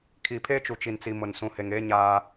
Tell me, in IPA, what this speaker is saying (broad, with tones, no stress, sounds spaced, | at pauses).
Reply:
kʰ i˨ pʰ e˦ t͡ʃ u˨ t͡ʃ i˨ n t͡s i˨ m ʊ˨ n s ũ˨ h e˨ ŋ eː˦ ɲ aː˦